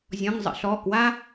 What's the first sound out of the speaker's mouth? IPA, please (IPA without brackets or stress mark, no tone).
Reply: zʲ